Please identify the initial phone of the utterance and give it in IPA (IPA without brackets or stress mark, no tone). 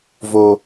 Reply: v